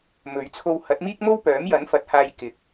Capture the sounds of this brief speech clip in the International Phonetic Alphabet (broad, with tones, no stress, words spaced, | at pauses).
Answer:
mɵ˨˧ɥt͡sʰo˧w hɐ˨˥t̚miː˥k̚mo˥w pœː˨˥mjɐ˨˥nfɐ˨˥t̚ haː˧j kɪ˨k̚